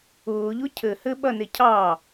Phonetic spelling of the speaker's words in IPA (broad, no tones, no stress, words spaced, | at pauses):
ʊːʎʊ cʰɘhɘ ɓɐnecʰɑ